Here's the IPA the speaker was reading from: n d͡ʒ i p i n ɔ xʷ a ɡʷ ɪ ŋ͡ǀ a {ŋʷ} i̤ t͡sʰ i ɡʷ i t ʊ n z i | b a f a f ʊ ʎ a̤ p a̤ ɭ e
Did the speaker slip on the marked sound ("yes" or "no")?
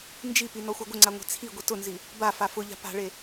no